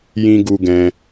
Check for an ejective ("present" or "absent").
absent